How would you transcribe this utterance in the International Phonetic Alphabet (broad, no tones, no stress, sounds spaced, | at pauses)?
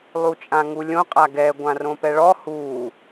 lˠ u t͡ʃʼ ã ŋ u lʲ õ qʼ a ɡ ɛ ɡʷ ã r õ p ɛ ɭ ɔ h uː